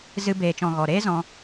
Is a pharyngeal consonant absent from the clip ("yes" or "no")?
yes